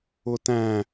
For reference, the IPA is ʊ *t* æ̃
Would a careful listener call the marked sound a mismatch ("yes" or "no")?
no